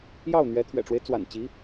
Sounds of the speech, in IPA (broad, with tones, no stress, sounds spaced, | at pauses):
j ɑ˥˩ ʊ̯ n̪ ɥ ɛ˧˥ t̪ʰ ɥ ɛ̰˨˩ ʈ͡ʂ w e˦ ɪ̯ t͡s w a̰˨˩ n t͡ɕ i˧˥